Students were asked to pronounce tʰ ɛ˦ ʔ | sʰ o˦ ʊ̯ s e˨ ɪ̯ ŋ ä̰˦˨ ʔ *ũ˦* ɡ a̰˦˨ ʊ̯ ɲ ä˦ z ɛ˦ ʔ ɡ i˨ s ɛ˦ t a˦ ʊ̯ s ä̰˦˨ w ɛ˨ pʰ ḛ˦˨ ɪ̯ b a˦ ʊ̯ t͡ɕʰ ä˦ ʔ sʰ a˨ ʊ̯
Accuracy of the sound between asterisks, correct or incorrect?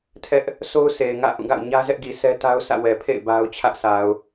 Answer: incorrect: ũ˦˨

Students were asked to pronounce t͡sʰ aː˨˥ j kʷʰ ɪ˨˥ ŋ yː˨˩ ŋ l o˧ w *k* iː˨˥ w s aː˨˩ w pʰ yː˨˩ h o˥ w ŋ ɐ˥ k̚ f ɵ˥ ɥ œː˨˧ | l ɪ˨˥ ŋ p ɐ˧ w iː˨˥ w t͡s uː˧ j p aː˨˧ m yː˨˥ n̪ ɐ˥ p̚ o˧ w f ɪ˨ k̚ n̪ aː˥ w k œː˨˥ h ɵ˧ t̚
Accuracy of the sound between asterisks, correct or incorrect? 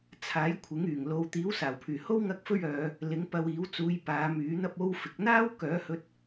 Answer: incorrect: t̪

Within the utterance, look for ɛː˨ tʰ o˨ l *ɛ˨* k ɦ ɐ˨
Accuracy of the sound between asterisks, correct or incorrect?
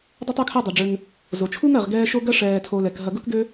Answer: incorrect: ɛ˩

